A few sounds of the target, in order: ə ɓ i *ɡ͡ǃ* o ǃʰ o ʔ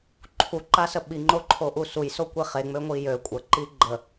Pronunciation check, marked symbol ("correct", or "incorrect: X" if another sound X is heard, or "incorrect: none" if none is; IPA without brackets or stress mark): incorrect: ŋ͡ǃ